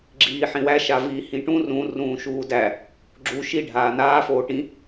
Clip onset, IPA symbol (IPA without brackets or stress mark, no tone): ɡ͡ǁ